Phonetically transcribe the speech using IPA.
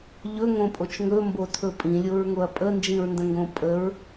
ʎ ɵ ŋ õ pʼ o t͡ʃ ŋ ɵ m b o tʰ ɵ pʼ ĩ lʲ o ɹ ŋ o ɐ̯ pʼ ə n d͡ʒ ĩ ɹ n d ə̃ ŋ ɡ õ pʼ ə ɹ

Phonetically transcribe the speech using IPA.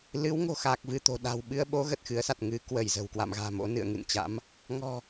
l ɨ˨˦ w ŋ o̤˨˩ x aː˨˩ k̚ v ɨ˧ t̪ o̤˨˩ ɗ a̤ː˨˩ w ɓ ɨ˧ ə̯ ɓ o˨˦ ɣ ə˨˩ t̚ x ɨ˨˦ ə̯ s a˨˩ t̚ ŋ ɨ˨˦ k w ə˧˩ j z ə̤˨˩ w k w a̰˧˨ m ɣ a̤ː˨˩ m o̰˧˥ n ɨ̰˧˨ ə̯ ŋ ɨ̰˧˨ n t͡ɕ a̰˧˥ m | ŋ ɔ̤˨˩

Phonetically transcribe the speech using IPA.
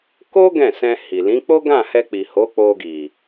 k o˦ ɡ ɛ̃˦˨ s ɛ̃˧ h i˨ l ĩ˨˦ k͡p o˦ ɡ ã˦˨ h ɛ˧ k͡p i˨ h o˨˦ k͡p o˧ ɡ i˨

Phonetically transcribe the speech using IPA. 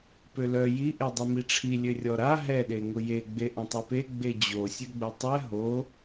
p ø l œ j i ʔ e dˤ u m i ʈ͡ʂʰ i lʲ ø rʲ ɔ ɾ a ɦ ɛ ɗ e ŋ ʊ j e ɡ͡b e ʔ ɐ̃ tˤ ɛ p e ɡ͡b e d͡ʑ o sʲ ø ɡ͡b ʊ tˤ ɛ ɦ o

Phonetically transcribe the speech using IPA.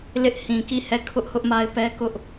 l ɪ˦ ʔ h ĩ˨ k i˦˨ h ɛ˦˨ kʰ ʊ˦ ʔ h ʊ˦ ʔ m a˦ ɪ̯ p ɛ˦ k ʊ˦ ʔ

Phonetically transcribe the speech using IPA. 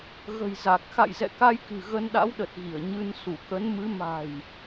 ɣ ə̤˨˩ j z a˨˩ k̚ x a̰˧˨ j z ɛ̰˧˨ k a˧ j k ɨ̤˨˩ ɣ ə˧ n ɗ a̰˧˥ w ɗ ə˨˩ t̚ ɣ i˧˩ ə̯ ɲ ɨ˧ n s u˧˩ k ə˨˦ n m ɨ˨˦ m a̤˨˩ j

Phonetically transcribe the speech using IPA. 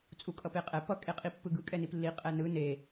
t͡sʼ u kʼ ʌ p e qʼ ɛ p ʌ kʼ e qʼ i pː ɯ ɡ ɯ kʼ ɛ n i p lː i qʼ ɛ n ɯ n e

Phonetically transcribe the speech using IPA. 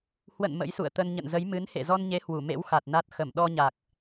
h w ə̰˧˨ n m ə̰˧˥ j s ṵ˧˨ ə̯ t̪ ə˧ n ɲ ə̰˧˨ n z ə˨˦ j m ɨ˨˦ n h ḛ˧˨ z ɔ˧ n ɲ e˨˦ h w u˧˩ m ḛ˧˥ w x a˨˩ t̚ n a˦˥ t̚ x ə˧˩ m ɗ ɔ˧ ɲ a˨˩ k̚

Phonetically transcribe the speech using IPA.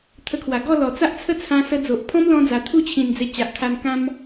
t̪ʰ ə˧ kʰ w a˨˩ ɡ ɔ˥˧ l ɔ˨˩ t͡s a˦ ʔ t͡sʰ ə˥˧ t͡sʰ ã˧ s ə˧ d͡z o˨ ʔ pʰ ɔ̃˦ m l ɔ̃˧ d͡z a˨˩ t̪ʰ u˥˧ t͡ɕʰ ĩ˨˩ n d͡z e˧ t͡ɕ a˨ ʔ kʰ a˧ n k ã˦ m

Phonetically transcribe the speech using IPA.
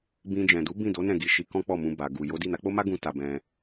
b ĩ˧ d͡ʒ ɛ̃˨ d u˨˦ b ĩ˦˨ d o˨˦ n ɛ̃˦˨ ɡ i˨˦ ʃ i˧ k ɔ̃˦ k͡p ɔ˦˨ m ũ˧ b a˨ ɡ u˨ j o˨˦ d i˦˨ n a˨˦ k͡p o˦ m a˦ ɡ ũ˧ t a˨ b ɛ̃˧

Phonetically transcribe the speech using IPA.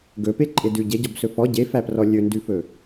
ɡ ɵ p e ǃʼ e d ʉ ɟ e ɟ ɔ b s ɵ f ɔ ɟ e f æ p r ɔ lʲ ɵ n d ʉ f ɵ

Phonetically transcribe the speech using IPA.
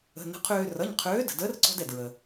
ə̤˩˧˩ n ə̤˨˥ qʰ øː˧ r ʌ˩˧˩ ɲ qʰ øː˨˥ d ə̤˩ d əː˨˥ r ǀ ɔ̤˧ d ɛ˩ d ɹ ə˩

